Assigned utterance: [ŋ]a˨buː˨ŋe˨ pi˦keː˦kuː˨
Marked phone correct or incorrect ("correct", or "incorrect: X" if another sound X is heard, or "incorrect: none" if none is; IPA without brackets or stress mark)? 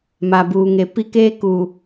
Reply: incorrect: m